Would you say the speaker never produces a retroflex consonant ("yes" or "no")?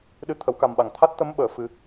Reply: yes